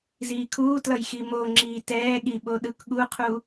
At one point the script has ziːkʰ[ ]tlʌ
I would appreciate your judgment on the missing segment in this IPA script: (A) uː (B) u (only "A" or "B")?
A